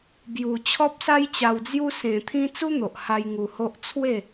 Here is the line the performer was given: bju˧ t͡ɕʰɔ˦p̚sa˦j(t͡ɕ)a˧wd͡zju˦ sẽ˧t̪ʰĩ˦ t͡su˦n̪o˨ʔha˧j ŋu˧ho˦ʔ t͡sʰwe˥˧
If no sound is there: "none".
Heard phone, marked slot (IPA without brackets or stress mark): t͡ɕ